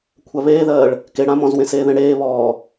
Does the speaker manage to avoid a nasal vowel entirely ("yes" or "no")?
no